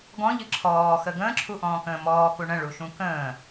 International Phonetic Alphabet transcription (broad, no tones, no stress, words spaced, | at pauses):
ɡɔ̃ʎɨ ǁʰɔːxə ɡə̃ːǁʰuʔɔ̃ːkə̃ː mɔːku ɳə̃ɭuʃũ kə̃ː